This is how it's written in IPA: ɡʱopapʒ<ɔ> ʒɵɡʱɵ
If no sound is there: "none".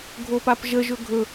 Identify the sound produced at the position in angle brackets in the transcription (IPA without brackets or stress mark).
ə